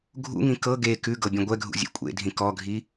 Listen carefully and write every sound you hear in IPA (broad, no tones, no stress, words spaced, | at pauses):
ɡʱṵŋĩ kɤ ɡe kʉɡɤ bʲɛ̃ɡʷɛɡʱṵ zʲḛkʷʼḛdʱĩ kɔɡʱi